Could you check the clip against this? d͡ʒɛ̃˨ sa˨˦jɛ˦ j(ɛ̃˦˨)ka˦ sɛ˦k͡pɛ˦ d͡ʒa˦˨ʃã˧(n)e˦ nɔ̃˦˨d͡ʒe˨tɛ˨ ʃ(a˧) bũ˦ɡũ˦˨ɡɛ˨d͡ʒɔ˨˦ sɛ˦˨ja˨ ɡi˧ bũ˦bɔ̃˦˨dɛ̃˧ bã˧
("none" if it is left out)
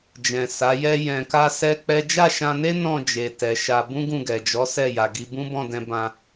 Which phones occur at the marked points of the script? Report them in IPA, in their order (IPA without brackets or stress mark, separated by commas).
ɛ̃˧, n, a˧